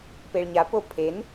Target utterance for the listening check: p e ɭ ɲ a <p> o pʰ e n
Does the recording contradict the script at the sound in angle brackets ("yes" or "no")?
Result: no